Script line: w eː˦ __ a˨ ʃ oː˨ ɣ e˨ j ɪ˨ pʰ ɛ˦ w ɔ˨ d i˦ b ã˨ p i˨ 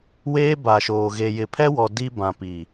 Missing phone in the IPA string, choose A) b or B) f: A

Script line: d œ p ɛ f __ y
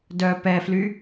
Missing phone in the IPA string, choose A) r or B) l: B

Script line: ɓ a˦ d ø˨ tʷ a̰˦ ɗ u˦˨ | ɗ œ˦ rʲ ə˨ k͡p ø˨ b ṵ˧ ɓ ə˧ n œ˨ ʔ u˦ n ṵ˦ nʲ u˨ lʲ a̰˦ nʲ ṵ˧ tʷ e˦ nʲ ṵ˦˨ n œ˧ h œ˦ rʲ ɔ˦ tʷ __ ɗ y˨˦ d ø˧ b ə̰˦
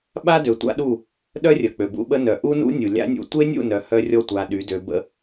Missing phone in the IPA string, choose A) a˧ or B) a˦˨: A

